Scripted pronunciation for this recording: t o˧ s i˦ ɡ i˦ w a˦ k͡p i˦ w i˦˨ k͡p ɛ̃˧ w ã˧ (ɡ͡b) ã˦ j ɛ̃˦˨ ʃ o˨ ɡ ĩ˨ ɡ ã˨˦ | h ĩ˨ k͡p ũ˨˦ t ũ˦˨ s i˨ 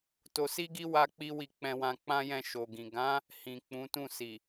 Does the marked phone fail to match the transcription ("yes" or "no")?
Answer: yes